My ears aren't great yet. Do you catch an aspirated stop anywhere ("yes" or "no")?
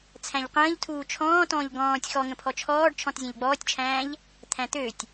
yes